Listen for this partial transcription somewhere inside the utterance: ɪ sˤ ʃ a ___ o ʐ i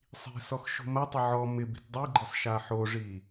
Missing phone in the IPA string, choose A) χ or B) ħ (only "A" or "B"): B